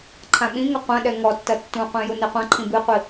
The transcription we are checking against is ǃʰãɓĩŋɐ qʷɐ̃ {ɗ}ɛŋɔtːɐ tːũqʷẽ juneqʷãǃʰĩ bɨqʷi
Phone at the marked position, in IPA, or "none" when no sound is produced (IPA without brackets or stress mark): ɗ